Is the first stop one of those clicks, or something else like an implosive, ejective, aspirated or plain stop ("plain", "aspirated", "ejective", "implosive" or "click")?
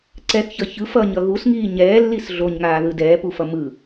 click